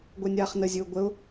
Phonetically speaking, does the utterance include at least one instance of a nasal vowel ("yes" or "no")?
no